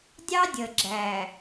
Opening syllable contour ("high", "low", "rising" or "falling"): high